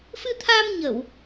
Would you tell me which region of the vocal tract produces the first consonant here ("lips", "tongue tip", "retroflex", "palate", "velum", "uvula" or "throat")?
lips